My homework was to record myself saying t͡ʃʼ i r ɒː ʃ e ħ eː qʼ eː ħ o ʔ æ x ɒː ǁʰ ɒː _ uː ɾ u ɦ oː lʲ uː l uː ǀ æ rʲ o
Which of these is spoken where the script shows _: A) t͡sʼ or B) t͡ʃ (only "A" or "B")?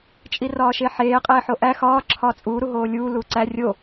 A